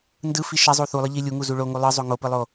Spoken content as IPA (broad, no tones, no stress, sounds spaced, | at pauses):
n d ɯ f i ʃ ɛ zˤ u θ u lˠ ɯ ʎ i lʲ u ŋ u z u ɭ o ŋ u lˠ ɯ zˤ o ŋ o p ɯ lˠ o